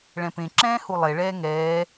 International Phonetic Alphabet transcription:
ɭɛ̃pẽ ǁɛ̃ːhulˠe ɭɛːŋɛː

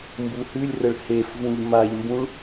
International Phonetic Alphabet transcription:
mbuhʉlʲrəɭ hefvũʎ maʎmbũɭ

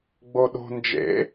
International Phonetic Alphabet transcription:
ɡ͡boɗo̤ nd͡ʒḛ

